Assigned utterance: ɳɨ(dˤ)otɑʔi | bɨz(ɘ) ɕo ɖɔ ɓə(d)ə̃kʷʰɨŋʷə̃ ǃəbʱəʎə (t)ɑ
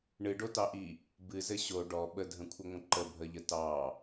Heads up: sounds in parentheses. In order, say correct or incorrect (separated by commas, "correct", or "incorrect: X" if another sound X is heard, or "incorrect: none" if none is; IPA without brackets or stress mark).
incorrect: ɖ, correct, incorrect: dʱ, correct